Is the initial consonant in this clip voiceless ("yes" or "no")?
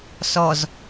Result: yes